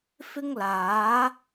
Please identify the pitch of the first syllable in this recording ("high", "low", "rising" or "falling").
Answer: high